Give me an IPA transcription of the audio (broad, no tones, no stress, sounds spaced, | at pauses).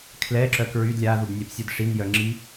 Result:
kʰ l ɛ ǁ œ k ɹ y d lʲ a ð u b nʲ ɛ p sʲ œ d ʂ i n j œ ŋ͡ǁ i